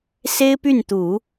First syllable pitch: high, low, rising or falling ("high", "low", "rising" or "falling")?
high